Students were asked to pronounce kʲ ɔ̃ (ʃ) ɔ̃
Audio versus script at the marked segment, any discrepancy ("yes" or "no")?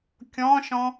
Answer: no